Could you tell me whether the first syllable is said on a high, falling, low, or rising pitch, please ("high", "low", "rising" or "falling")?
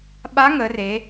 rising